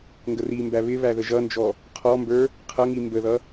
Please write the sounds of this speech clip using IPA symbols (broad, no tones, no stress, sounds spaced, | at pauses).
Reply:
ŋ ɡ ə r i m b æ β ɪ β æ ð ə ʒ ʌ n d͡ʒ ɔ | qʰ ɔ m b ə˞ | qʰ ʌ ŋ i m b ə ð ʌ